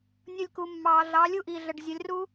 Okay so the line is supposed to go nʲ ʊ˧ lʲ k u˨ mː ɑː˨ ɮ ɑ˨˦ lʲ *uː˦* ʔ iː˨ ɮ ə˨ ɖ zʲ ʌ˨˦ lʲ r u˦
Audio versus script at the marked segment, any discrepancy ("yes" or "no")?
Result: yes